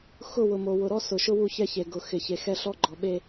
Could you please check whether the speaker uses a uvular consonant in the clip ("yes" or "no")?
no